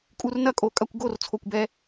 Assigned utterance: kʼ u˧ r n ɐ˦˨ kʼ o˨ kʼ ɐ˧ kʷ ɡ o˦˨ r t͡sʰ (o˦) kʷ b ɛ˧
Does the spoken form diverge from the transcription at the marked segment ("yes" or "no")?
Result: yes